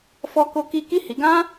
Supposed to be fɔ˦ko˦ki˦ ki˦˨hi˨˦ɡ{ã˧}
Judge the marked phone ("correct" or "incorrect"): incorrect